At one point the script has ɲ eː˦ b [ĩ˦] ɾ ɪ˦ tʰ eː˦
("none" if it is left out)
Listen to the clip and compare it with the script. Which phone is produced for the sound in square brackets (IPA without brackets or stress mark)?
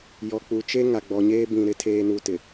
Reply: ĩ˨